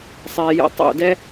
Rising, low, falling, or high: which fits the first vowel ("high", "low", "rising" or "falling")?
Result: low